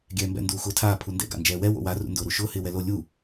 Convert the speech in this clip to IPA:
ɡʲ ɛː m b ɛ̰ n d uː x ʊː tʰ aː pʰ u n d ɛ̰ ɡ a̰ n d͡ʒ ɛː w ɛ w o̰ w a r ṵ n d ʊː ɾ u ʃ ʊː h ɪː w ɛ l o lʲ u

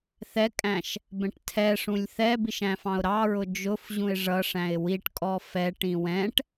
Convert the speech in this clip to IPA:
θ ɛ kʼ æ̃ ʃ | b ɛ̃ ʈ tʰ ɛ ʂ ũ lʲ θ ɛ b i ʃ æ̃ f ɑ̃ ʊ̯ ɾ ɑ ɹ ʊ d͡ʒ ʊ f ʑ ũ ɪ̯ ʐ ʌ ʂ æ̃ ɪ̯ w i ʈ kʼ ɔ f ɛ ʈ ĩ w ɛ̃ ʈ

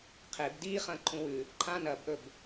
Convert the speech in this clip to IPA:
qʰ e b d i χ ɐ̃ː ǃʰ ũ w ʉ | ǃʰ ã n ɐ b ʔ ɵ b

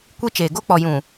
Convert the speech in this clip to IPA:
kʷ i˦ t͡ʃ eː˨ ɡ o˦ k͡p ɔ˨ j ũ˨

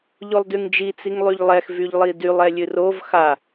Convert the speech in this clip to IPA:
ʎ o lˠ d y ŋ d͡ʒ i t͡s i ŋ lˠ y ʎ lˠ ɛ x v y ʎ lˠ i d y lˠ ɛ lʲ ɨ r o v x a

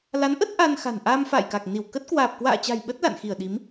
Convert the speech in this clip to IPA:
l a˨˦ n ʔ ə˦˥ t̚ ʔ a˧ n x a̤˨˩ n ʔ aː˧ m f a̰ː˧˨ j k a˨˩ k̚ n i˧˩ w k ə˦˥ t̚ k w aː˨˩ p̚ k w a̰ː˧˨ t͡ɕ a̤˨˩ j ɓ ə˦˥ t̚ l a̰˧˨ n x i˧˩ ə̯ ɗ i˨˦ m

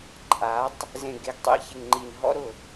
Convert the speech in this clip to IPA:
ǃʼ a˨˦ tˤ | z ẽ˨ ɡ e˨ ɡ tˤ ḭ˨ ç e˨ ŋ ŋ͡ǃ i˨ n ɦ ɔ̰˦ ɾ ʊ˦˨

